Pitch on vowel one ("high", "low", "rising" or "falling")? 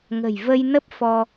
low